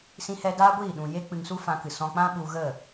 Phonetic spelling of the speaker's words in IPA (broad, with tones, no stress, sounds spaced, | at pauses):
s ĩ˧ h ɛ˧ d aː˦ ɡʷ iː˦˨ ɗ ũ˨ j e˦ k͡p ɨ˧ ŋ s u˦ f ã˧ k ɨ˨ s ɔ̃˧ k͡p ã˦ ɓ u˧ ɣ ə˦˨